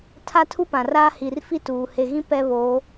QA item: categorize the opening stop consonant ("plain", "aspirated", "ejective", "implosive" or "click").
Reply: aspirated